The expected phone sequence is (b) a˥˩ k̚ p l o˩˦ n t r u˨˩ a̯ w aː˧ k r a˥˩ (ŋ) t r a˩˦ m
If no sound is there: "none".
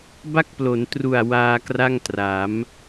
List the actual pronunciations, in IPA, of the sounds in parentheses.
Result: b, ŋ

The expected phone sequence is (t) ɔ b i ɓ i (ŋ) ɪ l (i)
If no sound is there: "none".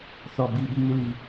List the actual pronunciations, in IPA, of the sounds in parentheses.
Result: θ, ŋ, i

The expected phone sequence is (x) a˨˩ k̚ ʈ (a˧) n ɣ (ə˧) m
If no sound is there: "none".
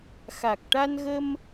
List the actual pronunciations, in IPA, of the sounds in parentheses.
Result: x, a˧, ə˧

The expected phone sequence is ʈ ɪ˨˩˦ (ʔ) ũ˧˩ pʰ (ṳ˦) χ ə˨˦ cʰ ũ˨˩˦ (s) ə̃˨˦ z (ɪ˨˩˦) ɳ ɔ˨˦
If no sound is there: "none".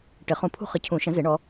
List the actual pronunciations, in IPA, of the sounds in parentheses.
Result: χ, ṳ˦, ʃ, ɪ˨˩˦

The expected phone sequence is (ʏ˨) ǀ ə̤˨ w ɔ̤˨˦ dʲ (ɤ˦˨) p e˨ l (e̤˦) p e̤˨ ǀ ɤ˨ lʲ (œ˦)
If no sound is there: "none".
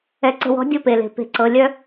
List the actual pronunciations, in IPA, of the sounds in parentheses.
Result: ɛ˨, ɤ˦, e̤˨, œ˦

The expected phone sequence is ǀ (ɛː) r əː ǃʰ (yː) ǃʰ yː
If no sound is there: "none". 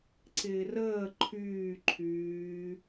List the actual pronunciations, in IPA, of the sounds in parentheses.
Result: ɪː, yː

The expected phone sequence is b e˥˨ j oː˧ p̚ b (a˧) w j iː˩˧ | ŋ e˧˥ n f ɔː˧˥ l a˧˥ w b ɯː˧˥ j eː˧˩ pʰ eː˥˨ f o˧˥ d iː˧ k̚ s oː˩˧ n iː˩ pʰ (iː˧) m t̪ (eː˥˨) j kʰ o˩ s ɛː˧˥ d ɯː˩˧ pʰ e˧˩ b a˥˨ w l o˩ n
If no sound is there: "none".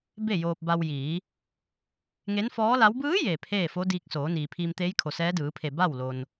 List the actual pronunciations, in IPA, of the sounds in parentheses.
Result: a˧, iː˧, eː˧˥

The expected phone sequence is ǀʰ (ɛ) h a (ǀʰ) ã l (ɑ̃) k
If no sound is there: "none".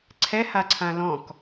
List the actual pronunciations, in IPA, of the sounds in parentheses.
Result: ɛ, ǀʰ, ɔ̃

